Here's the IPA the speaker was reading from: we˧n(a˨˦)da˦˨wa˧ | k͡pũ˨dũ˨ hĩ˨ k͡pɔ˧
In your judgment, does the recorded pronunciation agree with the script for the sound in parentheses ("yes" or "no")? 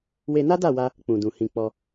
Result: no